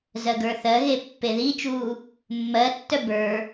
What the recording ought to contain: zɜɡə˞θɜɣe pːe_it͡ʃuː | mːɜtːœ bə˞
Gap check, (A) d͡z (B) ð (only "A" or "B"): B